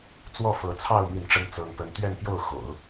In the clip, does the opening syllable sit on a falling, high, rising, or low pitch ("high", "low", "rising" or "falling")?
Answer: falling